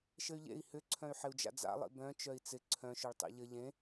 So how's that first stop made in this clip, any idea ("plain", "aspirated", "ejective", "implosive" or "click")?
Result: click